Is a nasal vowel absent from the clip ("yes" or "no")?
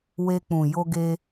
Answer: no